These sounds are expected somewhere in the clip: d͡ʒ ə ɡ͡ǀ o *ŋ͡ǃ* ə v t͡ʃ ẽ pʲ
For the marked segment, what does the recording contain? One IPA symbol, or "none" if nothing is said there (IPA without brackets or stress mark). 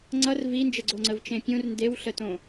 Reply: ŋ͡ǀ